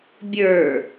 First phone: bʲ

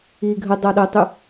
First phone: i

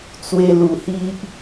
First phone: t͡s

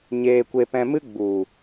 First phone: ɲ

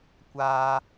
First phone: kʷ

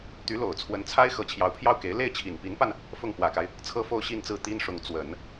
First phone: t̪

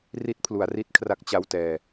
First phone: r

